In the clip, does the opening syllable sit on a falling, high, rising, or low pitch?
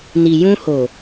low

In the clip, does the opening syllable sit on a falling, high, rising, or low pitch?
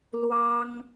high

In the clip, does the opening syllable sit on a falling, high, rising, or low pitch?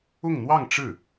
falling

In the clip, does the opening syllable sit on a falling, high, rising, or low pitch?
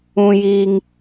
low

